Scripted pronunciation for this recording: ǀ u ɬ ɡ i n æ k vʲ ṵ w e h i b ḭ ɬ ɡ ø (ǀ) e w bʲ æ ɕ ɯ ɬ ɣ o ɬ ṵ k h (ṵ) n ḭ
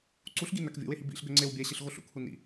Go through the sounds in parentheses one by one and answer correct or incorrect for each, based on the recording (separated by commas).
incorrect, incorrect